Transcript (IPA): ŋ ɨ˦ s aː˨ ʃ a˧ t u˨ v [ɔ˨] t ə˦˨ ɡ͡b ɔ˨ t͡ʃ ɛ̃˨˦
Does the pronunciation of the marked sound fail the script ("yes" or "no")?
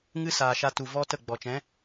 yes